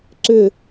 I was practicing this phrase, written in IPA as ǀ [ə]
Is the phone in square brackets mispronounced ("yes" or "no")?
yes